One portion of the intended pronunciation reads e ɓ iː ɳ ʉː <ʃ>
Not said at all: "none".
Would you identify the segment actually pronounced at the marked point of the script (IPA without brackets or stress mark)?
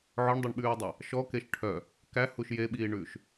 ʃ